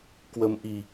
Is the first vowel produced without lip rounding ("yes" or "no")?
yes